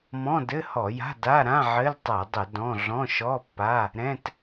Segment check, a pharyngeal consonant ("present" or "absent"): present